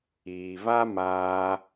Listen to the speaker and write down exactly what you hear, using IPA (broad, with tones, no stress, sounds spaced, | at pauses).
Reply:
iː˨ v a˦ m aː˧